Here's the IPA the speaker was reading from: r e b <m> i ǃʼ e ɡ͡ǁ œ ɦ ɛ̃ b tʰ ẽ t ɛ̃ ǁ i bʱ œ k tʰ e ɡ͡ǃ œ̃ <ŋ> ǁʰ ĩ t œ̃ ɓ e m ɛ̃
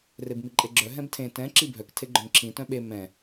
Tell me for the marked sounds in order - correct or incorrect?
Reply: correct, correct

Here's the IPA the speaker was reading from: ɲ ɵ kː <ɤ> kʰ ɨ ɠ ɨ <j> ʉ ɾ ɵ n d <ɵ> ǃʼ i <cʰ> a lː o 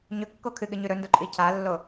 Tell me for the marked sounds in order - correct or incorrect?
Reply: incorrect: o, incorrect: ɲ, incorrect: o, correct

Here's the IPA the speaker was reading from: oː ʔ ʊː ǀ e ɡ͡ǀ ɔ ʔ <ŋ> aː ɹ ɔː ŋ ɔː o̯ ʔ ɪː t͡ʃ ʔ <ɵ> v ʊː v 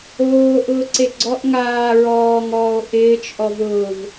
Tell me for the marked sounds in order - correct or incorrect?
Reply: correct, incorrect: ɔ

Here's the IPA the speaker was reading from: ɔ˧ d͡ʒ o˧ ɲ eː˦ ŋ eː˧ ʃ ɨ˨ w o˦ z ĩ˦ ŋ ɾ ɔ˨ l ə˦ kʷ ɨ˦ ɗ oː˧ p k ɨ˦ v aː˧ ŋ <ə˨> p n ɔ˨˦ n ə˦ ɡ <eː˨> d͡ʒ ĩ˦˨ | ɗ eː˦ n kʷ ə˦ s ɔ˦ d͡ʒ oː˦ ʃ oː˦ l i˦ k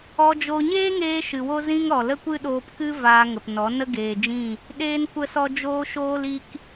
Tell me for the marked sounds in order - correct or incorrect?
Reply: correct, correct

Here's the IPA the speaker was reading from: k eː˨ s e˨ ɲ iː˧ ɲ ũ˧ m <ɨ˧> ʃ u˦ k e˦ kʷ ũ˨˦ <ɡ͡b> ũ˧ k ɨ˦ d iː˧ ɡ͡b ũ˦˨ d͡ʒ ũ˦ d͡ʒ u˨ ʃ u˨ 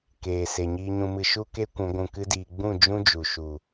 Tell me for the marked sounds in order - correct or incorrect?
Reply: correct, incorrect: ɡʷ

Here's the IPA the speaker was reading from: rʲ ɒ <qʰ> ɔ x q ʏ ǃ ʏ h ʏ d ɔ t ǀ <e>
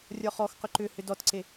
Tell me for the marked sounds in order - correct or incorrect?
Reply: incorrect: χ, correct

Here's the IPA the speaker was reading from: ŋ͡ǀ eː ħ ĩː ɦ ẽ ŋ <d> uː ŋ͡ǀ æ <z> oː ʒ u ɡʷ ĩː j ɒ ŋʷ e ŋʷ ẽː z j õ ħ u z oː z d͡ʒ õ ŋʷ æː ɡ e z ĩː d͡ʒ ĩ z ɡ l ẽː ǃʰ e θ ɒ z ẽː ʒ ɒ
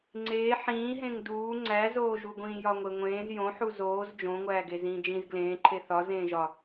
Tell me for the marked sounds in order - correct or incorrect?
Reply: correct, correct

